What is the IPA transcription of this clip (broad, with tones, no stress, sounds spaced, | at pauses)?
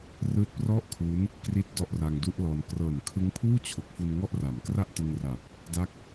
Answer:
r ɯː˦˥ t̚ p r ɔ˥˩ ʔ kʰ u˦˥ n | k r i˦˥ t̚ d ɔ˥˩ ʔ r a˧ ŋ d u˥˩ ʔ l ɔː˧ n k r ɤː˨˩ n kʰ ɯ˦˥ ŋ pʰ uː˥˩ t͡ɕʰ o˨˩ k̚ f u˧ n ŋ ɔ˥˩ ʔ r a˩˦ m k r a˥˩ ʔ t ɯ˧ ŋ r a˨˩ p̚ | d a˥˩ k̚